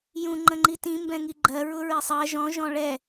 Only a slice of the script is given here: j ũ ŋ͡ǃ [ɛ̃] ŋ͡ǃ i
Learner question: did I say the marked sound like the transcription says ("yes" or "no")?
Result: no